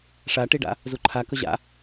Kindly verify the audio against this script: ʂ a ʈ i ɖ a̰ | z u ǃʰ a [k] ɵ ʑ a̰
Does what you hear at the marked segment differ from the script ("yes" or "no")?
no